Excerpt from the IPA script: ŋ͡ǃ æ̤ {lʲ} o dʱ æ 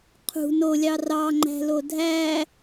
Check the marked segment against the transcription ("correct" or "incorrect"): incorrect